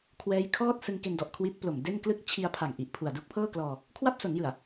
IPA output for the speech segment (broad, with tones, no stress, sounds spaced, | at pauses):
kʰ w ɛː˦˥ j kʰ ɔː˥˩ t̚ s ɯ˧ ŋ k e˧ n d ɔ˨˩ ʔ kʰ w i˦˥ t̚ p l o˨˩ m d e˥˩ n k l ɯ˥˩ k̚ t͡ɕʰ i˧ a̯ pʰ a˨˩ ŋ ʔ i˨˩ ʔ pʰ u˨˩ a̯ d u˦˥ k̚ pʰ ɤː˥˩ k l ɔː˧ | kʰ w a˥˩ p̚ s o˩˦ n j ɯ˨˩ a̯